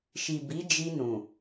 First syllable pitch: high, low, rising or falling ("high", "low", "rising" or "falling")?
low